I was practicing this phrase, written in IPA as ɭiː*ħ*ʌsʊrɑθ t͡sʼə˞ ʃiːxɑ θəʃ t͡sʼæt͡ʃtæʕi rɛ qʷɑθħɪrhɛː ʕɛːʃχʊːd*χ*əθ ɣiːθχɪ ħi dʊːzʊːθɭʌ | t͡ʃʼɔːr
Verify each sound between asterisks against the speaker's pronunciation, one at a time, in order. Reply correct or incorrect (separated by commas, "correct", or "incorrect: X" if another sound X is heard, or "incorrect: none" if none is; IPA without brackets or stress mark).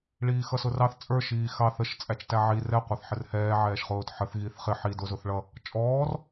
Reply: incorrect: x, incorrect: ħ